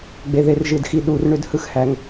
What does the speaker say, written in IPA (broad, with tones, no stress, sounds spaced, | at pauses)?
ɡ͡b e˩ ð e˩ r ʒ ɯ˩ d x i˩ ɗ u˩ r ɳ ø˩ d h ɯ˩ x h æ˩ ŋ